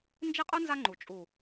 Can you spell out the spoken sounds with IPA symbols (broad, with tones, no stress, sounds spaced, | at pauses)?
n d͡ʒ e˦ qʼ ɯ˦ n z a˦ ŋ͡ǃ u˨ t͡ʃʼ u˨